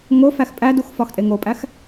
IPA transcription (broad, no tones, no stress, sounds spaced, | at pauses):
ŋ o f æ x pʼ æ d u x f ɒ x tʼ e ŋ o pʼ æ x